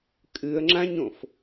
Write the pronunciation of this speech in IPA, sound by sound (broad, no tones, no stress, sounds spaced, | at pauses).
kʼ ɨ ə̯ ŋ͡ǁ ã ɲ õ f